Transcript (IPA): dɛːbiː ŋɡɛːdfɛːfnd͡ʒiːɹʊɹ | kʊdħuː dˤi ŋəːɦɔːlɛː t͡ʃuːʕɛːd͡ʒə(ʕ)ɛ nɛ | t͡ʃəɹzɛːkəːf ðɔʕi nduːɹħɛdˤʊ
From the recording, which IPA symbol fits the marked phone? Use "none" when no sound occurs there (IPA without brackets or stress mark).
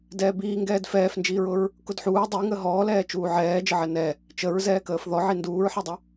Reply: ʕ